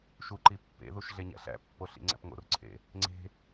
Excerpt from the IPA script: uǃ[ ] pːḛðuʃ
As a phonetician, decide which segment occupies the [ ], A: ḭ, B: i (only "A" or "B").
B